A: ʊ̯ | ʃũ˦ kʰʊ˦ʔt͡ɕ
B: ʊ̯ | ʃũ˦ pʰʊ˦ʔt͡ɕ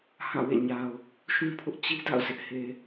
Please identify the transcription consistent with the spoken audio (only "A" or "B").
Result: B